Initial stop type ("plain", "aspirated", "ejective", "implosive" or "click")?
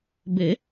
plain